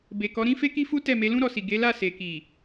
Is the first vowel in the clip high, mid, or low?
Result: mid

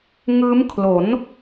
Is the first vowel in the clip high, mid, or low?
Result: high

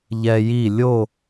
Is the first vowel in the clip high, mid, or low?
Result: mid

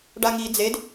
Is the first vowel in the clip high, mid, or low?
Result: low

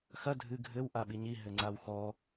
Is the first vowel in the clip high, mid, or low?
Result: low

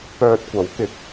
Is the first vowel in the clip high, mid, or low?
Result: mid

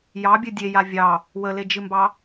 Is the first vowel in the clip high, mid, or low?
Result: low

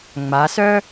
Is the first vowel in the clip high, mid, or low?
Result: low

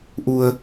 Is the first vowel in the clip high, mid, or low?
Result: high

